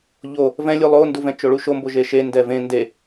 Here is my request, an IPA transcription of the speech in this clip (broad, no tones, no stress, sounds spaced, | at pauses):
ʎ o | v ɛ̃ lʲ u lˠ o n d u v ɛ̃ t͡ʃ o ɭ u ʃ o m b o ʒ e ʃ e n d ɛ v ẽ n d e